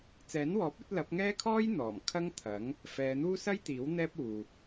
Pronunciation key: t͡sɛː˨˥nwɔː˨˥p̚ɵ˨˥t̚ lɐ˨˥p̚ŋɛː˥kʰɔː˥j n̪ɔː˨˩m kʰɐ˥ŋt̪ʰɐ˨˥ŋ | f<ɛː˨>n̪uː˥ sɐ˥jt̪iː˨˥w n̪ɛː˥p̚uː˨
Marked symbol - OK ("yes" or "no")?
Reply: no